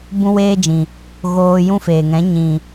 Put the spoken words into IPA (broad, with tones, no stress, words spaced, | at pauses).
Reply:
bũ˦weː˦d͡ʒĩ˨ | ɣoː˧jũ˦feː˨ŋɛ̃˨˦ ɲĩ˨